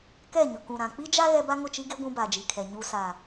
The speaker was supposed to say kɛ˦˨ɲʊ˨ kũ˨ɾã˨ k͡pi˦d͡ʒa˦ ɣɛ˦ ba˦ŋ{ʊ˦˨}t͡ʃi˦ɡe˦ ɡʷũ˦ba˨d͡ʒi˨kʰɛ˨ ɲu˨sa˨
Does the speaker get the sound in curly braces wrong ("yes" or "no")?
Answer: no